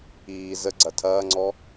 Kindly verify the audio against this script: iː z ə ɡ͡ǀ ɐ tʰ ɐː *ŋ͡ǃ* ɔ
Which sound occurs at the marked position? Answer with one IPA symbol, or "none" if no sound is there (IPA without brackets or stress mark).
ŋ͡ǀ